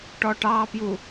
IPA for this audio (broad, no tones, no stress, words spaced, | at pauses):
ʈɔʈɑpju